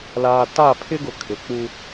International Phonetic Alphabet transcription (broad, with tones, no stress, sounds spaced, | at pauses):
l aː˨ t a˦˨ pʰ ɪ˦ ɡ ʊ˨ kʰ ɪ˨ k͡p u˦